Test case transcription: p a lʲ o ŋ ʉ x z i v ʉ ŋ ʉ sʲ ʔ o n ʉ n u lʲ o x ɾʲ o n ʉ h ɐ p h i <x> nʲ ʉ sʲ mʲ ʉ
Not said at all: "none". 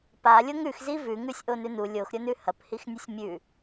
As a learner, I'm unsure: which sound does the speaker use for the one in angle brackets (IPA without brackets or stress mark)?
x